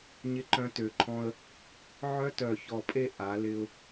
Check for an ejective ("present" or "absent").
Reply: present